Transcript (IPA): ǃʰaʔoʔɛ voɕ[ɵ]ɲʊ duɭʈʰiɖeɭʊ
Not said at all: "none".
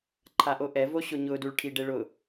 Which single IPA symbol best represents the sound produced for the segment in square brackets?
ʊ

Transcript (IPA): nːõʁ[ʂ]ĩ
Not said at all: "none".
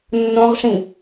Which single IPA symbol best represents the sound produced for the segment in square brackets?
ʂ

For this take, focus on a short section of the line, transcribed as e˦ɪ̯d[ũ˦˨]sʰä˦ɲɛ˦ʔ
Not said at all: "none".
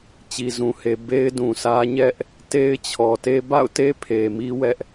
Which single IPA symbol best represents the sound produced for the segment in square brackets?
ũ˨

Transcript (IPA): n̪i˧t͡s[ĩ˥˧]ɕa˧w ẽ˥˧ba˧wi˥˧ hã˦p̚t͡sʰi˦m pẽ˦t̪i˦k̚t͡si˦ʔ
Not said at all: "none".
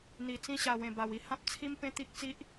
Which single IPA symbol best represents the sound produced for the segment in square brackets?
ĩ˦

